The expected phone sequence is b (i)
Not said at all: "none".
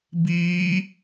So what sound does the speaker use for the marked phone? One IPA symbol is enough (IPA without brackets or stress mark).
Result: iː